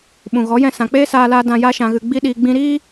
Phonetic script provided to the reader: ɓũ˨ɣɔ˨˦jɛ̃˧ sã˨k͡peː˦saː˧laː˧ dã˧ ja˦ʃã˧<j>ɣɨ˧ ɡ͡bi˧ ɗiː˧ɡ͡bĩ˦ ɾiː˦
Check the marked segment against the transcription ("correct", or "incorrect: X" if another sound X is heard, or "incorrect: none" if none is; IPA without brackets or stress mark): incorrect: none